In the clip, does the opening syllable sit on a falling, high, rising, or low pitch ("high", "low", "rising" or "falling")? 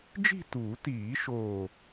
falling